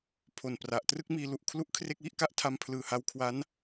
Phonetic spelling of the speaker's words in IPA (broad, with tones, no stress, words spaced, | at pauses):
pʰo˨˩npra˨˩ʔ trɯ˥˩k̚miː˧lu˨˩ʔ kʰlu˥˩ʔkʰre˥˩k̚wi˥˩ʔka˥˩ʔ tʰa˧mpʰlɯː˨˩ha˧w kʰwa˦˥n